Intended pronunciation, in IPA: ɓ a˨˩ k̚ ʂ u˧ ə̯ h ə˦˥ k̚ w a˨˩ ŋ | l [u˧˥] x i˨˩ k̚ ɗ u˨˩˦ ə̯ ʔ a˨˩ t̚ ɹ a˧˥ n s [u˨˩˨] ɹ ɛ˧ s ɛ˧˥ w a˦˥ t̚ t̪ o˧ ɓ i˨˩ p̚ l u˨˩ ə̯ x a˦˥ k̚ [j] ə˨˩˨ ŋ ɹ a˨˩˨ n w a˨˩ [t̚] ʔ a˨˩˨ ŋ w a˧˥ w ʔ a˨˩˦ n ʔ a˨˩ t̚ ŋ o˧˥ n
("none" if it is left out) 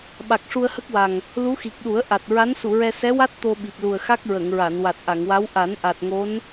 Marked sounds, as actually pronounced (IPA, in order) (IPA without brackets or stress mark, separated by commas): u˧˥, u˨˩˨, ɹ, t̚